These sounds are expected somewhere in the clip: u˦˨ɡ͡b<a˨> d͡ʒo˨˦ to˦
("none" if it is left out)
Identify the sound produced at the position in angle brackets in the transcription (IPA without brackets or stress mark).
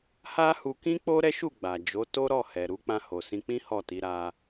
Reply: a˨